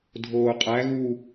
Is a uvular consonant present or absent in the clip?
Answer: present